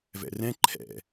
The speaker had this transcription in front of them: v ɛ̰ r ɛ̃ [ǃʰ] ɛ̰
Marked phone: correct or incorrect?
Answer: correct